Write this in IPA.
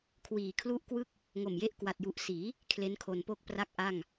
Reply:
kʰ w iː˨˩ kʰ l u˥˩ ʔ k w ɯ˥˩ k̚ | ŋ o˨˩ m j e˦˥ ʔ k w a˨˩ t̚ j u˨˩ ʔ s iː˩˦ | kʰ l e˦˥ n kʰ o˧ n p o˥˩ k̚ p r a˥˩ k̚ ʔ a˥˩ ŋ

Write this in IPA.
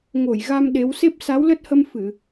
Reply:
ŋ o˧˩ j ɣ a˧ m ɗ e˨˦ w s e˦˥ p̚ s a˨˦ w l ə˦˥ t̚ h ə˧ m f ɨ˧˩˨

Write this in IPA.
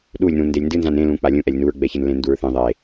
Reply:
ɗ u lʲ n ũ n d e lʲ n d ɨ n z ã n ẽ l ũ k͡p a lʲ ũ ʔ ɛ lʲ n u ɹ ɡ͡b ɛ ç ɨ n l ẽ n d u ɹ θ ẽ ðˤ e

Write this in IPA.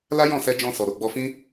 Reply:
l a˦ j ɔ̃˦˨ s ɛ˧ d͡ʒ ɔ̃˧ s ɔ˨ ɾ o˨ ɡ͡b ɔ˧ f ĩ˦

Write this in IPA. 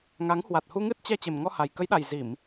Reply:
ŋ a˨˦ ŋ h w a˨˩ t̚ h u˧ ŋ ɨ˦˥ t̚ t͡ɕ ɛ˧ t͡ɕ e˨˩ m ŋ ɔ˧ h a˨˩ j k ə˨˦ j ɗ a˨˩ j z i˧˩˨ m

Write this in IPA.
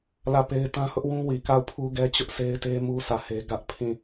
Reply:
l ä˦˨ p e˦ ɪ̯ t ã˦ h ʊ˦ ʔ w ũ˦ w i˨ k a˦˨ ʊ̯ pʰ u˦ ɡ ɛ˦ t͡ɕ ʊ˦ ʔ s e˦ ɪ̯ t e˦ m u˦ sʰ ä˦˨ h e˦ ɡ ä˦ ʔ pʰ ĩ˦˨

